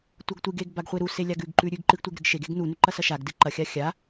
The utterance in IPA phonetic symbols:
tʷ ɐ ɡ tʷ ɨ ɡ e ɡ b a ɡ χʷ e ɾ u s e lʲ a ɡ ʉ ɡ ǃ ʉ ɾʲ ʉ ɡ ǃ ɨ ɡ tʷ e ɡ ɾ ɨ ɡ ʃ e ɡ e ɡ n u n ʉ ǃ ɐ s ɐ ʃ a ɡ d ɨ ǃ ɐ xʲ a xʲ a

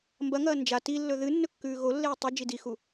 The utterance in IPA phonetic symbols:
m b ɐ ŋ ɐː n d͡ʒ a t i lː ɵ ð ɨ nː ɵ kː ʉː ɣ o lː eː tˤ ɐ d͡ʒ i d i x u

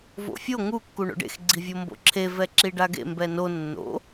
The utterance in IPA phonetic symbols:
v o̰ fʲ o ŋ u kː u ɳ o̰ ɖ ḛ x ɡ͡ǀ i vʲ o m b o̰ ǁʰ e v ɛ ǁ i ɖ a ɡ ḛ m b ɛ n o nː o̰

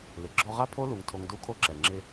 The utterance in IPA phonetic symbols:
l ɪ˨ ɡ͡ǁ ɔ˧ ʁ a˦ pʰ o˦ l u˨ ŋ tʰ o˧ ŋ d u˦ kʰ o˦ ǁ ɛ˨ ŋ͡ǁ ɪ˧

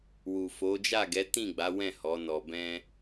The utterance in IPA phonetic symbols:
w u˨ f o˨˦ d͡ʒ a˦˨ ɡ ɛ˨˦ t ĩ˦˨ ɡ͡b a˨˦ w ɛ̃˦˨ h ɔ˨˦ n ɔ˧ b ɛ̃˦

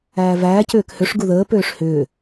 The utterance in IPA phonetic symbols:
æː v æː c ʏː k h ø ʂ ɡ u ð əː p øː ʂ h ʏː

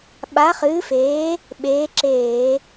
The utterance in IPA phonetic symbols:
ɓ a˨˥ χ ɨː˨˥ f eː˨˥ | ɓ eː˨˥ ǁ eː˧˩˧

